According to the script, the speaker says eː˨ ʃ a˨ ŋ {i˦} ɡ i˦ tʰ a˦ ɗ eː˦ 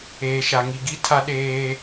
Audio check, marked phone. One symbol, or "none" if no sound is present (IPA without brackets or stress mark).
i˨